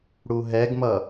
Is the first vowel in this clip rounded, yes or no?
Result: yes